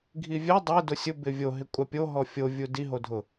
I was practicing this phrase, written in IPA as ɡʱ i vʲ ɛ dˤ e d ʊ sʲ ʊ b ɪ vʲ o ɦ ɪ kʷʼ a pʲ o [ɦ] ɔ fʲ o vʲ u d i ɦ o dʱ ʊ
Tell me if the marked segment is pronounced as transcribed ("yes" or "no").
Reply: yes